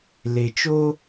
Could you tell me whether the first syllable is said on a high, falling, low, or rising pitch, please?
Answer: low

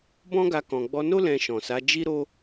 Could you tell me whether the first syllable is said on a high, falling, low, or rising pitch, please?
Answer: high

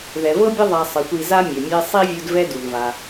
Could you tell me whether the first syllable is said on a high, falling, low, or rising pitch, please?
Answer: low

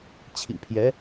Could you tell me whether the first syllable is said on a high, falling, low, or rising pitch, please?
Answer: low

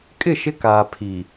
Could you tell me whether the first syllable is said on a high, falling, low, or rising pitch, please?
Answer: falling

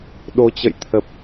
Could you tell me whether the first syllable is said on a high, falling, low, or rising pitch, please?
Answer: rising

